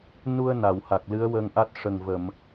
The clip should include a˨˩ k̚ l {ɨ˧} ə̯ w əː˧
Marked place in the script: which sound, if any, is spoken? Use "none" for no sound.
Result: ɨ˧˥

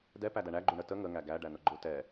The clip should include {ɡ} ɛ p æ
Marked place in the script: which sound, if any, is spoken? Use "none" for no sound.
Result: d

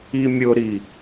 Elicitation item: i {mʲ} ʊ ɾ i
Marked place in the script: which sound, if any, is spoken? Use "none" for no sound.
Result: mʲ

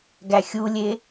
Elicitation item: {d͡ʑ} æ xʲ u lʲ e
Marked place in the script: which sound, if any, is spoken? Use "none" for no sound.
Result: ɡ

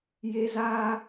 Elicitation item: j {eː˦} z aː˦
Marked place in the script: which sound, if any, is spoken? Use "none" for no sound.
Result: e˦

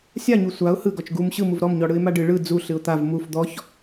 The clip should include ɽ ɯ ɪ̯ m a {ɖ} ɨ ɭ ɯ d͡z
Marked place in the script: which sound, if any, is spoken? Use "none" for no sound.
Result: ɖ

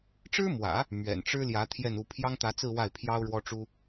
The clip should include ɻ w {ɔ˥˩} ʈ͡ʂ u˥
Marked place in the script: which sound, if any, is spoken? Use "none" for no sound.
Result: ɔ˥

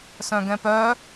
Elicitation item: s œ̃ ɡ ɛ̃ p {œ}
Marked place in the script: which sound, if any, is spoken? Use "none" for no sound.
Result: œ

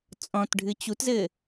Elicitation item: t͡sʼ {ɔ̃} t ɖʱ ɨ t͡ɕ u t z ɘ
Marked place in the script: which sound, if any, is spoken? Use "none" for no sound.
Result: ɔ̃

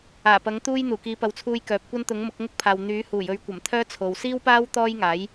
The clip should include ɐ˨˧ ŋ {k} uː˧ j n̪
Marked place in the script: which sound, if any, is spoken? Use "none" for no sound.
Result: t̪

